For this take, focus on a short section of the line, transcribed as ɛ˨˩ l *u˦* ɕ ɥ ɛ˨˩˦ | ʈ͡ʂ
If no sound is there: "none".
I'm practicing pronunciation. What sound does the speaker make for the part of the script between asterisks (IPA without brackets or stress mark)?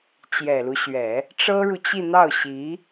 u˦